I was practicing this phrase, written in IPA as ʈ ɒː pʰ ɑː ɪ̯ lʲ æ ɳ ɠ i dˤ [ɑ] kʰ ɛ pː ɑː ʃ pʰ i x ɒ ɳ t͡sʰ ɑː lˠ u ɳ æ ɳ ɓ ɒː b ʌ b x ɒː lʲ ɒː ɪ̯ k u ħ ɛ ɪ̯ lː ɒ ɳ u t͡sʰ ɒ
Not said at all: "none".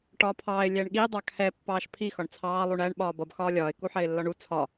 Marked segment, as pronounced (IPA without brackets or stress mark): ɑ